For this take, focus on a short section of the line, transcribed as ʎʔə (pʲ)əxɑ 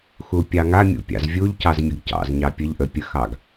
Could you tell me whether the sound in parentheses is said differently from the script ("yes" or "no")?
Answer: no